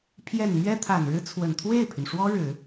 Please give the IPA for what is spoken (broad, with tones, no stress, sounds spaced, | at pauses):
pʰ j ɛ˨˩ n m ɥ ɛ˥ t̪ʰ a˨˩ n ɻ ɻ̩˥ t͡sʰ w ə˨˩ n t̪ʰ w e˥˩ ɪ̯ pʰ y˩ n ʂ w ɔ˥ ɻ ɻ̩˨˩˦